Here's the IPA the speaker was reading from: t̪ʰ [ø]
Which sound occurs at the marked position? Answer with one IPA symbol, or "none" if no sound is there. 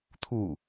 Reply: u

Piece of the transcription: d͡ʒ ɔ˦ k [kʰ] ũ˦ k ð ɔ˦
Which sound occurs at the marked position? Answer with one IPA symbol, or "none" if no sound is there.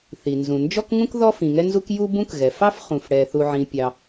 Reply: ŋ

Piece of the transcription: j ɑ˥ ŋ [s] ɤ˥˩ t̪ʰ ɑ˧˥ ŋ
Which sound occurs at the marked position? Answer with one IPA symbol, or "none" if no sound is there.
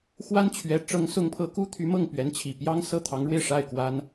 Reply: s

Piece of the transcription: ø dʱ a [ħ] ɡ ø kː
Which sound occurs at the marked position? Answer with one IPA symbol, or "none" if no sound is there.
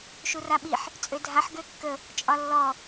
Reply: ħ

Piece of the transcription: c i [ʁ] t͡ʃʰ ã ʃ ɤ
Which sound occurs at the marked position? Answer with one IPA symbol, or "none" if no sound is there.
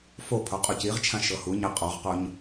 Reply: ʁ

